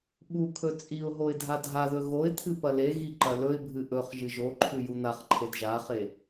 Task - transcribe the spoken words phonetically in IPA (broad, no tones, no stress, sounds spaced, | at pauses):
ɓ u kʰ ɵ t͡sʼ i ʊ̯ ɦ o ɪ̯ dʱ a dʱ a ð ɵ ɣ o ɪ̯ t̪ʰ ɨ p ɐ l e ɣ i ǃ ɐ l ɵ ɪ̯ bʱ ɨ ʔ ɵ χ ʒ ɨ ʒ o ǃʰ ʉ j u n̪ a χ ǃʰ e d ʒ a χ e